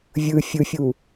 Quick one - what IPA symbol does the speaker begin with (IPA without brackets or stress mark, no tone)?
vʲ